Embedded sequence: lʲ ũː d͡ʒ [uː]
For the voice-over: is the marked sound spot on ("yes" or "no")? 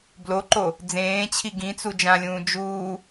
yes